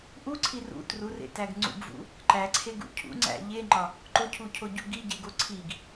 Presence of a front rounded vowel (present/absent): absent